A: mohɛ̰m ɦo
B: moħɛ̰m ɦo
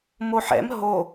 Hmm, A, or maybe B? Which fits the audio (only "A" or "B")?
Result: B